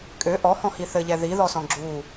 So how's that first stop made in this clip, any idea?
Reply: ejective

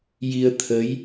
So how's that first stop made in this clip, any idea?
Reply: aspirated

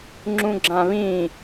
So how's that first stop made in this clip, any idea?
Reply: click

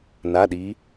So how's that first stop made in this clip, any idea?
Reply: implosive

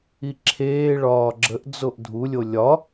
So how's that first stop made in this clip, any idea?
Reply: click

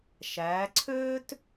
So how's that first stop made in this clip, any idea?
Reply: click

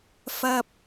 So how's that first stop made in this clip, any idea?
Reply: plain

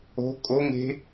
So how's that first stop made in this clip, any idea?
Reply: ejective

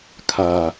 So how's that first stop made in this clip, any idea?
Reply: aspirated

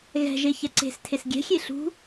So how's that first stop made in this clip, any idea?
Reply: click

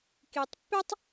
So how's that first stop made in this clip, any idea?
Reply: plain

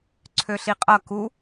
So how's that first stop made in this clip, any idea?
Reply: click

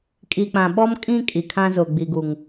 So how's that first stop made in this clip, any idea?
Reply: ejective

